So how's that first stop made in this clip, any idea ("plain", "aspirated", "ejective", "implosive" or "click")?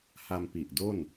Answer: plain